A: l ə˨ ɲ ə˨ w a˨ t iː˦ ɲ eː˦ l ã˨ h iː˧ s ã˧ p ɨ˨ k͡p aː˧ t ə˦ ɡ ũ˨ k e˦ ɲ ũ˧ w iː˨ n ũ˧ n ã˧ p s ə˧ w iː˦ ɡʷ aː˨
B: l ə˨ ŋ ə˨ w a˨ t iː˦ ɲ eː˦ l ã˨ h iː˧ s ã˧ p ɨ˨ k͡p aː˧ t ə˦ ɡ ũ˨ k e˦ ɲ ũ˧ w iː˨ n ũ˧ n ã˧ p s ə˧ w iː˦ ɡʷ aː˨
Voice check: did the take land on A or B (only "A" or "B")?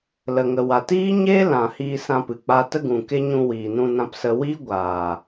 B